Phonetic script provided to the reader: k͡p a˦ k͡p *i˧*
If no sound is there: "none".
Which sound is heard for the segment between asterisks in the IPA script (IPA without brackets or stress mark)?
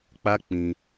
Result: ĩ˧